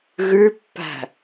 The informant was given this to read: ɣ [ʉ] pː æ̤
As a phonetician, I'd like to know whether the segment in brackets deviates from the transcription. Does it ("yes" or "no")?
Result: no